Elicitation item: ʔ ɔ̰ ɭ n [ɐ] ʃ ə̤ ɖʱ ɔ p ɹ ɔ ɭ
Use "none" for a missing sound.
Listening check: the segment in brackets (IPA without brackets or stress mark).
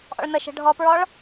ə